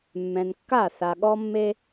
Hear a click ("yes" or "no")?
no